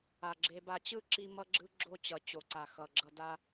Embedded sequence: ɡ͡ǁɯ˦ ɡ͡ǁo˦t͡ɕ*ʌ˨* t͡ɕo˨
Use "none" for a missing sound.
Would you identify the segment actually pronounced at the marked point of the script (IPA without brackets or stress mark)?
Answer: ʌ˨